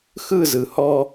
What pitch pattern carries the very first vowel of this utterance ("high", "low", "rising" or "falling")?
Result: falling